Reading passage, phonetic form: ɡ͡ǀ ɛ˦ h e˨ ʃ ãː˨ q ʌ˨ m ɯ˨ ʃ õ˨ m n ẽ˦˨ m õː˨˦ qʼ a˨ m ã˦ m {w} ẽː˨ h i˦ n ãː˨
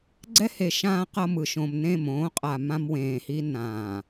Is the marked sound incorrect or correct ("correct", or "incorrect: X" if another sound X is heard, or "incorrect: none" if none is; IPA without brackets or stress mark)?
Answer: correct